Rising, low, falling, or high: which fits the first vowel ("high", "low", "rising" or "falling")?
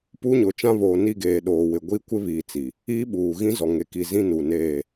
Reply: high